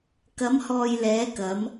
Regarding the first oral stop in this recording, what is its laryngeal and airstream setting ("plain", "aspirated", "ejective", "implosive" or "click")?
plain